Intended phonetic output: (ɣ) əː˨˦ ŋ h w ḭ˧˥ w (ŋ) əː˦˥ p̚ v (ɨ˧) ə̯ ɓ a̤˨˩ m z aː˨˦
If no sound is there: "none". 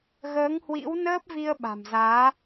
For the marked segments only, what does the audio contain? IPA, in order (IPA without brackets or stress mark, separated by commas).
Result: ɣ, n, i˧